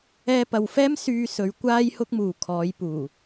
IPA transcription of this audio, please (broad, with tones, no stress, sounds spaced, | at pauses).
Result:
ɛː˧ p ɐ˨ w f ɛː˥ m s yː˧ s ɵ˨˧ ɥ kʷ aː˥ j h ʊ˥ k̚ m uː˨ kʰ ɔː˨˧ j p uː˨˩